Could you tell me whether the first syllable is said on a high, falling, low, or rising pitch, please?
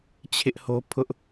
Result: high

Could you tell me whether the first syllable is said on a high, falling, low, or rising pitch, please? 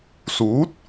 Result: rising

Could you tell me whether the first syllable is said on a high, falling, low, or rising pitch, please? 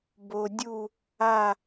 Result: low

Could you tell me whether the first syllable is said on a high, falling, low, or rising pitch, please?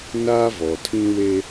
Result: high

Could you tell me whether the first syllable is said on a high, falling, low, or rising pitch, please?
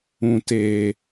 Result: high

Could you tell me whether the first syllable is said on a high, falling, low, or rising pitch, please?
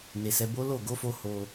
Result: low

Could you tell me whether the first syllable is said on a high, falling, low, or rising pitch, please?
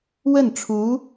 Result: falling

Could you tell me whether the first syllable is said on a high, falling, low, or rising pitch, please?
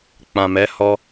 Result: low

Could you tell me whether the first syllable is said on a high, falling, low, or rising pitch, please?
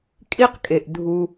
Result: high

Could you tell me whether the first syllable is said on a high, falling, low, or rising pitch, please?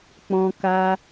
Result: low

